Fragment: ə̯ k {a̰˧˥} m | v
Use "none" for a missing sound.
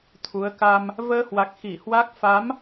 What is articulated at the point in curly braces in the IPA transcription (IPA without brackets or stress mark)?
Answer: a˧